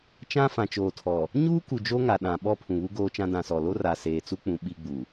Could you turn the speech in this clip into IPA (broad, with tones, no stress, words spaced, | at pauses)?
t͡ʃã˦fã˨ t͡ʃoː˨tʰɔ˨ | ɲuː˦ ku˨d͡ʒo˦ŋa˨ ɗã˨ ɓɔ˦ pʰũ˨βu˦ɡoː˦t͡ʃã˦ dã˨sɔ˨lo˦ ra˨seː˨t͡su˦k͡pũ˨ ɓi˦ ɡ͡bu˨